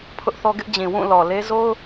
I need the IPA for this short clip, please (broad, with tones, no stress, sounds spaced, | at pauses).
pʰ ʊ˦ ʔ θ ɔ˦ ɡ ɪ˦ ʔ d͡ʑ ĩ˨ w ũ˦˨ l ɔ˨ l e˦ z o˦ ʊ̯